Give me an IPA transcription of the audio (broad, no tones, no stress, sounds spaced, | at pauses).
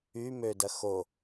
y m ø d ɐ x o